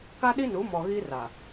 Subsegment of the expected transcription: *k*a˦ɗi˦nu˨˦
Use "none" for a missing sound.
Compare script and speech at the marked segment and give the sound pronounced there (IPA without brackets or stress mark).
k